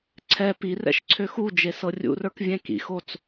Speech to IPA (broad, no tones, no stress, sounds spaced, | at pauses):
ǀʰ ɛ p i r ɛ̰ ʃ ǀʰ ø x u d͡ʒ e s ɤ rʲ ṵ r ə˞ k vʲ ɛ̃ k ḭ x o t͡s